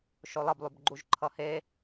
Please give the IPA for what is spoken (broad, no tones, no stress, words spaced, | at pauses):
ʃolˠʌblˠubɡ͡ǃuʒ ǃʰʌhe